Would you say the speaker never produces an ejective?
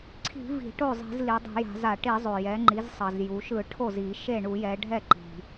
yes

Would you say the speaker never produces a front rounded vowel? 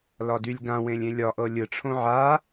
no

